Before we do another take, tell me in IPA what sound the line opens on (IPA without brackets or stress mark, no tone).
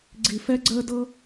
ɡ͡ǀ